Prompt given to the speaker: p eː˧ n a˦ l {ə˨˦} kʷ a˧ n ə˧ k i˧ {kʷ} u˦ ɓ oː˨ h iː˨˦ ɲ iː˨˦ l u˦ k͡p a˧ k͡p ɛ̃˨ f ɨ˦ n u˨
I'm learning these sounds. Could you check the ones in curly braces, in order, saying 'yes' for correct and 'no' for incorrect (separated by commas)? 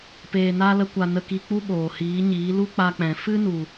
no, no